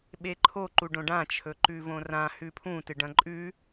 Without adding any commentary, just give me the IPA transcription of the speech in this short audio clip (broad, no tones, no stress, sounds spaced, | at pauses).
ɓ e ǃʰ o ǃ u ɖ õ ɖ ã t͡ʃʰ ɵ ǃ ʉ v õ r ã h ʉ pʰ ũ t ɨ ɖ ɐ̃ ǃʼ ʉ